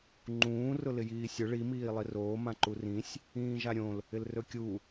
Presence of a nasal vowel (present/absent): present